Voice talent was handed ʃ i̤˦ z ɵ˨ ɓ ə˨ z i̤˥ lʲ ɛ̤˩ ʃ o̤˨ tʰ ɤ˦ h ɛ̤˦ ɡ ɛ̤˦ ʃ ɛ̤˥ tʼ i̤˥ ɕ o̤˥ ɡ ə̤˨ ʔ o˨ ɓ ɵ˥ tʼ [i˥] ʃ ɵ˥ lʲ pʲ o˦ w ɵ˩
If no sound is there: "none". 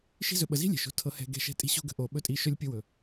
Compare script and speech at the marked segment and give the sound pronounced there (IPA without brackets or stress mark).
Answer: i˦